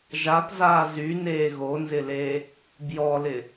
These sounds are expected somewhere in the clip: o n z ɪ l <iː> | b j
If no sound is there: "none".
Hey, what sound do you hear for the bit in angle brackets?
eː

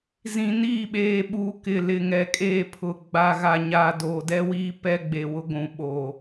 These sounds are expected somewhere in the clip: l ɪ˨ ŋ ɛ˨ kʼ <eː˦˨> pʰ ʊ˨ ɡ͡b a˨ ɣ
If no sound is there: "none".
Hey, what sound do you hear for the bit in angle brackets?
eː˦˨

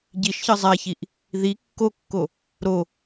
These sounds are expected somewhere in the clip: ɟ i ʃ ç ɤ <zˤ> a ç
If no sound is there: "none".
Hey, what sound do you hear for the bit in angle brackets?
zˤ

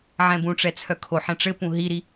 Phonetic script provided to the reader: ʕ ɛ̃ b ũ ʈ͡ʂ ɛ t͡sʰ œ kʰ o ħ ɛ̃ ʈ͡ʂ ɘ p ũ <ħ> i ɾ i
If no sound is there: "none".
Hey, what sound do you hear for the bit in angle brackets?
ɦ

